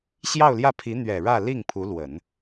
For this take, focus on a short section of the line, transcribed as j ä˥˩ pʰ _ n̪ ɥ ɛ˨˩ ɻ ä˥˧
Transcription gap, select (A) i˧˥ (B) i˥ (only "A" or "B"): A